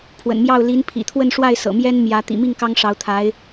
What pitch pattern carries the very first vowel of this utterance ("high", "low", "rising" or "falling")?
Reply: low